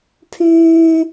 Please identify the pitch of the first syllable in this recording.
high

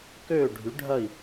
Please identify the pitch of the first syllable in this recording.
falling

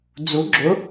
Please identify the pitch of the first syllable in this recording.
rising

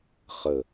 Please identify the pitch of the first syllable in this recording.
falling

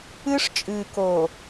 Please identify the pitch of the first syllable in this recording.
high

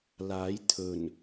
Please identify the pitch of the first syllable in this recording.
rising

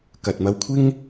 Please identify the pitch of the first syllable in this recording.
low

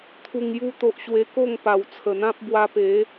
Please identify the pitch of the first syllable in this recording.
low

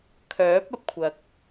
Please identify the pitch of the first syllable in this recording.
rising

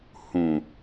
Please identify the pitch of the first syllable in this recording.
low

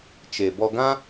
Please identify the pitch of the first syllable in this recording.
low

